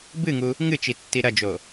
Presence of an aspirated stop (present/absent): absent